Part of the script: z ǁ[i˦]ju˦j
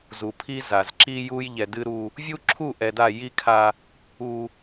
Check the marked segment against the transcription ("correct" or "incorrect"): correct